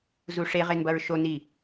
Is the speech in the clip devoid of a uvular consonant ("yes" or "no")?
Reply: no